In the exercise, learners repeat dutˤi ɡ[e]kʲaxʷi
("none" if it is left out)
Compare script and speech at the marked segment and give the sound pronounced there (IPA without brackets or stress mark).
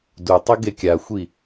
e